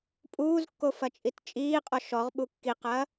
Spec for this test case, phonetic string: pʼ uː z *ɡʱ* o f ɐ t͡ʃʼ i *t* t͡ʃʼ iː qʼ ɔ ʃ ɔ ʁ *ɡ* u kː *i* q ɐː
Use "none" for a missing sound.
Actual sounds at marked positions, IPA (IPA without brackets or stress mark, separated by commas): kː, t, ɓ, i